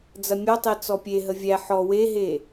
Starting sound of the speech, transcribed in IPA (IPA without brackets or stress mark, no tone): d͡z